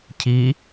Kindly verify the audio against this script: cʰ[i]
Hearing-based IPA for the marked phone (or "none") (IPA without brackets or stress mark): i